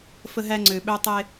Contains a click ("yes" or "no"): yes